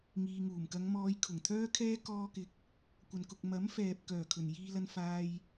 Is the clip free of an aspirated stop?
no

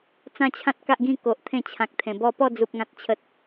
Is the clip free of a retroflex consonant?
yes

